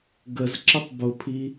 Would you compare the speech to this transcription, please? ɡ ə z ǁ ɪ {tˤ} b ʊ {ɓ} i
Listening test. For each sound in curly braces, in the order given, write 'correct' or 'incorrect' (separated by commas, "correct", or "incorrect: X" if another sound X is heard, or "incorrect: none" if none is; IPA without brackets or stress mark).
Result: correct, incorrect: pʰ